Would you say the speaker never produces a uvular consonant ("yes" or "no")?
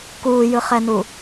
no